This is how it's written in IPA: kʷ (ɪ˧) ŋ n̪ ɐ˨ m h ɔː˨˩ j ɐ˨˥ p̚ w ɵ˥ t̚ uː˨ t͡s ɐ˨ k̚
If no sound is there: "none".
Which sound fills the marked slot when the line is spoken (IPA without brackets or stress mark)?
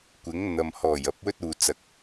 ɪ˨˥